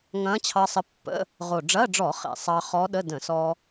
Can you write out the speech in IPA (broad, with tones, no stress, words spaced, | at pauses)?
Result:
ŋɐ̃ː˧˥t͡ɕʰɑ˧sˤə˧pːə̰˧˥˧ | ʁo˨˩ɖ͡ʐɐ˧˥˧ɖ͡ʐɔ˧˩˧ χḛ˨˩sˤɑ˧ χɔ˧˥ɗə˧˥˧ də̃˧˩˧sɔ˧